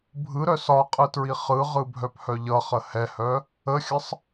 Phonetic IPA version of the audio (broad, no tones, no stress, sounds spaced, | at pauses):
bʱ ɯ ɾ œ s ɒ qʼ ɯ t ɹ i χ ɯ ʁ ɯ bʱ œ p h œ ʎ ʌ χ ə h ɛ h œ | ə xʲ ə sˤ